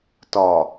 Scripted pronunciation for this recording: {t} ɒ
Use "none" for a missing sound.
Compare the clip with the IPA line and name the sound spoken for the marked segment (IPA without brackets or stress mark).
t